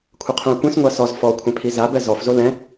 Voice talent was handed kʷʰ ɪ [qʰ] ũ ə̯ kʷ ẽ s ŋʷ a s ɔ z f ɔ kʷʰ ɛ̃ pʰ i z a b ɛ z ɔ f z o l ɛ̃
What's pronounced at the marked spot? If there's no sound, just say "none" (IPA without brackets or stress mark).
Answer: qʰ